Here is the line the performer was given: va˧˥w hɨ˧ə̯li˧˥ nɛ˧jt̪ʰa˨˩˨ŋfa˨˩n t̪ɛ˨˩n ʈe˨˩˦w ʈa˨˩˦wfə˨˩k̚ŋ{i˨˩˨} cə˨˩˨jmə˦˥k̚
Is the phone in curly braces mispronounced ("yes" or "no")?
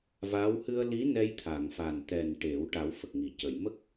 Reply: no